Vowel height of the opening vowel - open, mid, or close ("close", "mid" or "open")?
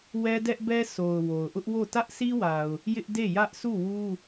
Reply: mid